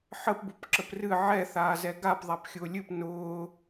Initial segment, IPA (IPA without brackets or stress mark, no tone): ħ